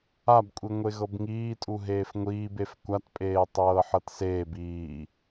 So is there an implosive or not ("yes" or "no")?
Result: no